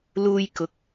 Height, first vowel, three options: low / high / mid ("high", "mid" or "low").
high